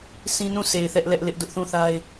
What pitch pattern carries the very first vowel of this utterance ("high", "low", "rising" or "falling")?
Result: high